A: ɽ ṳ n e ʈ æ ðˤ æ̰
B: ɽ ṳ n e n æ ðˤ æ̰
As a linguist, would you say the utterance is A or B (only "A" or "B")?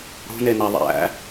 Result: B